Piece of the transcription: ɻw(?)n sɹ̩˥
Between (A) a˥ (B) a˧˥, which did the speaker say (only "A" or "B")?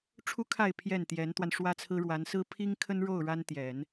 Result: B